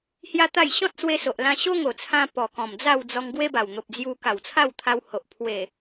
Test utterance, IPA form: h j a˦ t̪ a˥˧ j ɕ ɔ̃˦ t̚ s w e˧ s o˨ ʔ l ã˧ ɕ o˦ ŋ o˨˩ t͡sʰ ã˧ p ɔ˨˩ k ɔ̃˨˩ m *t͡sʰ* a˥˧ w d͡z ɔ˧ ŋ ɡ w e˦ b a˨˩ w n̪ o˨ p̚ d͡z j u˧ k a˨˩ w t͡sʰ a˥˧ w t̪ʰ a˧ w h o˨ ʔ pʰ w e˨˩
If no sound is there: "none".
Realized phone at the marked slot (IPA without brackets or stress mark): d͡z